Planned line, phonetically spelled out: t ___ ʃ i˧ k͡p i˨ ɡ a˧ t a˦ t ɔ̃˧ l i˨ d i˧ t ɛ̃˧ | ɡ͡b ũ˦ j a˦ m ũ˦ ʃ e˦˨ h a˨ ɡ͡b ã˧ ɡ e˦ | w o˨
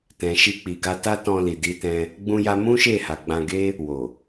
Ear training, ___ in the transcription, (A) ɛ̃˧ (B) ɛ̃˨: B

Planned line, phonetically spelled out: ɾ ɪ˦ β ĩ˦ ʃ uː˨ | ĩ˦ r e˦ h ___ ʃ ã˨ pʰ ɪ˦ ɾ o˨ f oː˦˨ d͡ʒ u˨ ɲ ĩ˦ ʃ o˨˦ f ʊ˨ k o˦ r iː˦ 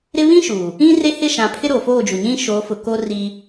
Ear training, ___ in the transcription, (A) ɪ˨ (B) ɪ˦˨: B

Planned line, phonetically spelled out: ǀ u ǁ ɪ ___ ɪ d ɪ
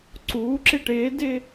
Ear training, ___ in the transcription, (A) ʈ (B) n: A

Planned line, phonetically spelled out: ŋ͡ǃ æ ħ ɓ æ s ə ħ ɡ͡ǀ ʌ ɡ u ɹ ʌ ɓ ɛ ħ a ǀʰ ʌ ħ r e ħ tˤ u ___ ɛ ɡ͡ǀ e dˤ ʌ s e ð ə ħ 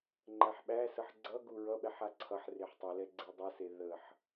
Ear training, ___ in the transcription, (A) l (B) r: A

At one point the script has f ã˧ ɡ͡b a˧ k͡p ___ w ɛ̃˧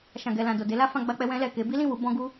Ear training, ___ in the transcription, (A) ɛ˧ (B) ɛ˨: A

